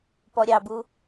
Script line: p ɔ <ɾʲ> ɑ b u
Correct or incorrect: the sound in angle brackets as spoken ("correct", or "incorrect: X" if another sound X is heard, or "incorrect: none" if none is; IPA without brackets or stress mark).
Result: correct